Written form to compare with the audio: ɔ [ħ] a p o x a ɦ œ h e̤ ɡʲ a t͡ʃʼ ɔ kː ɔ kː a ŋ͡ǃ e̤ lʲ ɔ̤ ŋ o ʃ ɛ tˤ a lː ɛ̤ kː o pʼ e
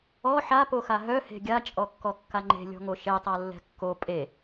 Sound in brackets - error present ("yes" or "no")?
no